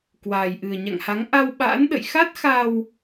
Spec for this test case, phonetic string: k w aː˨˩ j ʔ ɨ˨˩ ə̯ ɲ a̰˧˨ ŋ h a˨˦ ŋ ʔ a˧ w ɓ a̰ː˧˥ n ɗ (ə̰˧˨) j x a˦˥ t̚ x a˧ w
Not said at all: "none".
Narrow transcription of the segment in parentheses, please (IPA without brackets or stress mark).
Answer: ə̰˧˨